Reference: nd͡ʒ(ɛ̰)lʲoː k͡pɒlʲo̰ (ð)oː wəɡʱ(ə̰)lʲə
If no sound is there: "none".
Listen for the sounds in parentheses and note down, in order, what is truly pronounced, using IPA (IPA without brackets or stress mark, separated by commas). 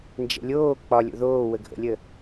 ɛ̰, ð, ə̰